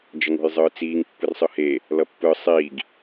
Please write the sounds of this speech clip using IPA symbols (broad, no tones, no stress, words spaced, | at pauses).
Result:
d͡ʒʌŋo̤jzˤɯːt͡siːŋ pːɯrsˤɯhe | lʌpːɯ sˤiːɡ